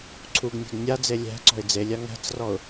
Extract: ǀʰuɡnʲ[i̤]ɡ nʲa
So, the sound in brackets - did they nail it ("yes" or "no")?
no